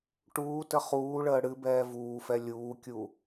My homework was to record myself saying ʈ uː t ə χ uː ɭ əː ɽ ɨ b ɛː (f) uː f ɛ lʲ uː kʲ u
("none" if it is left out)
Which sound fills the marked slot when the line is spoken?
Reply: v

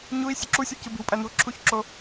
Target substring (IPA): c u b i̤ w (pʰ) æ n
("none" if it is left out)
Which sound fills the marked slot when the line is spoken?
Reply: pʼ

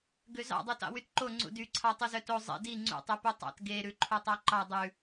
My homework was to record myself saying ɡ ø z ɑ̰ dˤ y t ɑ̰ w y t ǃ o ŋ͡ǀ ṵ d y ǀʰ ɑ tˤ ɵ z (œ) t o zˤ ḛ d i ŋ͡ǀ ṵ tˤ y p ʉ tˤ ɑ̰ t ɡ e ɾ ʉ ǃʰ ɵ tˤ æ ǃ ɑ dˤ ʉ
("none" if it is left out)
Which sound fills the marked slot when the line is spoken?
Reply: œ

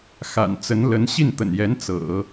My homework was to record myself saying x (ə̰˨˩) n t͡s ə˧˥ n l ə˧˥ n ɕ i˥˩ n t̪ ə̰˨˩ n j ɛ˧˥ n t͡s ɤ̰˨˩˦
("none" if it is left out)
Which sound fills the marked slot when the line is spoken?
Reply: a̰˨˩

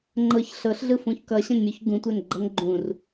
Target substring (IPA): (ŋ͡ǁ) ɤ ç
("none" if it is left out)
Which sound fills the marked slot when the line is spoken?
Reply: ŋ͡ǃ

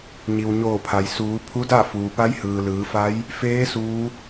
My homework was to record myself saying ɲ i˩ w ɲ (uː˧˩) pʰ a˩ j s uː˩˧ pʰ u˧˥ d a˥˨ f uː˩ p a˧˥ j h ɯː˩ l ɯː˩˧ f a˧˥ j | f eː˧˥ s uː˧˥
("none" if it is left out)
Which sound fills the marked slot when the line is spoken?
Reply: oː˧˩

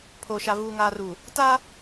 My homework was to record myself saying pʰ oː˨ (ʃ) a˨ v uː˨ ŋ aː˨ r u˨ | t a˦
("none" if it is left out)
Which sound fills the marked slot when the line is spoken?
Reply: ʃ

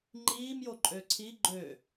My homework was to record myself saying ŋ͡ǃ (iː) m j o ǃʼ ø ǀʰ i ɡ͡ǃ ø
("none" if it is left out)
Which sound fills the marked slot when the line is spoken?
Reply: iː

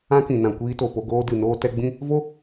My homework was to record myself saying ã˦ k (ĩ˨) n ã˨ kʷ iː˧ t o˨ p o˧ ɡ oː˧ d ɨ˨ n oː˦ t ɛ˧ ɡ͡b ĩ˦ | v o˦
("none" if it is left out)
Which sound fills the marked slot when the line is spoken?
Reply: ĩ˨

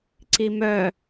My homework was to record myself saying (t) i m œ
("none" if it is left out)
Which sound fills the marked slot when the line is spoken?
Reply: ǀ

